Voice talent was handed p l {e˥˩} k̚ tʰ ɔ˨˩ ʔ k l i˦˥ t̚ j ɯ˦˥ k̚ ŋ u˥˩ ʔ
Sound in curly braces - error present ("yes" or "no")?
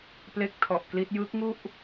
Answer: yes